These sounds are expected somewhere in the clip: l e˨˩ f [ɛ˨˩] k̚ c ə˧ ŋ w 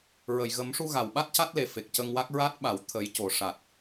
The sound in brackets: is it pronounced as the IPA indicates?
no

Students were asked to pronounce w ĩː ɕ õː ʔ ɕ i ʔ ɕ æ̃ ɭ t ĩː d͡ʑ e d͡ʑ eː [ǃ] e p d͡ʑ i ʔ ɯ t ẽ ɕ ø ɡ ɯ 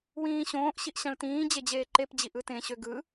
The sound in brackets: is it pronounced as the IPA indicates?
yes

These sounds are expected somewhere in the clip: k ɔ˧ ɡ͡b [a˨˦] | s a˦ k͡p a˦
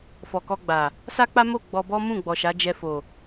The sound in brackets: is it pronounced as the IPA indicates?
no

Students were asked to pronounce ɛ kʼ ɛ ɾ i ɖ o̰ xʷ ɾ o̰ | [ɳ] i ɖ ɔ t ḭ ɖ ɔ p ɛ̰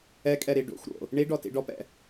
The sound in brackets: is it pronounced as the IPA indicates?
yes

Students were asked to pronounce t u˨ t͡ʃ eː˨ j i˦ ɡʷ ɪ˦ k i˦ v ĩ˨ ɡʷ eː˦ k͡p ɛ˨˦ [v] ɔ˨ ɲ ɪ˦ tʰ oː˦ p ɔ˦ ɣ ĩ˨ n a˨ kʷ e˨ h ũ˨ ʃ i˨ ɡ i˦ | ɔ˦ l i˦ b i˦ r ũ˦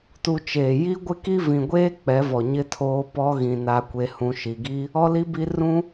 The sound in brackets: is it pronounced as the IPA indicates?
yes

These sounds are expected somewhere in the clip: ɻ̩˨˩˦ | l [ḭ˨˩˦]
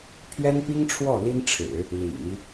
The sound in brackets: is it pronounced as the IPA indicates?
yes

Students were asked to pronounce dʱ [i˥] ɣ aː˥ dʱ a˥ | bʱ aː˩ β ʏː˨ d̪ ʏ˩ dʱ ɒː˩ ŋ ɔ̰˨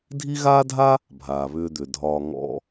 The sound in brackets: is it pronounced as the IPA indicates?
yes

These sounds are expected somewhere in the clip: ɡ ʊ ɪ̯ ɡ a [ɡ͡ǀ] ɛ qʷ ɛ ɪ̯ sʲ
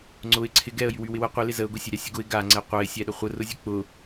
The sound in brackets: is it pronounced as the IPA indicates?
no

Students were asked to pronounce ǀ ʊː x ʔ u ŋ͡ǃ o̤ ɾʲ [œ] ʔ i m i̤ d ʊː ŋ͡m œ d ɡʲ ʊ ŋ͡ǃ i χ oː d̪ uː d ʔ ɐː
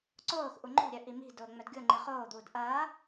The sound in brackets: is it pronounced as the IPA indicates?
yes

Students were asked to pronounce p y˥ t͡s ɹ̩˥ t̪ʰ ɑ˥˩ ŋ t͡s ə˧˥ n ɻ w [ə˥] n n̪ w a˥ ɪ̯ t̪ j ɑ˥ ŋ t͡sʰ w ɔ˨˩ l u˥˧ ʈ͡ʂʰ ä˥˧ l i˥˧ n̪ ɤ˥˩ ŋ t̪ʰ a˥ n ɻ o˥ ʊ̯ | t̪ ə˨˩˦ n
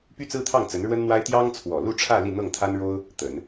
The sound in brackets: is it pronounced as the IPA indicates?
yes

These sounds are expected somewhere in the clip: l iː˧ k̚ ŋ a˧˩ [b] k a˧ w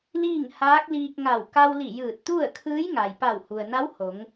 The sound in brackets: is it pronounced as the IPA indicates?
no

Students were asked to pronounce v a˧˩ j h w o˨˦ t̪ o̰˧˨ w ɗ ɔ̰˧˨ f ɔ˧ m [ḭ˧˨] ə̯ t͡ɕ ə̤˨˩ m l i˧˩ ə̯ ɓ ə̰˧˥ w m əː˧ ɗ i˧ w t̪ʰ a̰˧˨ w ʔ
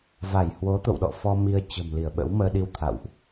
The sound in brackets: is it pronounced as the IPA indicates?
no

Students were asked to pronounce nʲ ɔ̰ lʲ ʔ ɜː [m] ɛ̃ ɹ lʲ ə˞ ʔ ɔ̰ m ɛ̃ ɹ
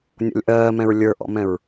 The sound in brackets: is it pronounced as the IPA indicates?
yes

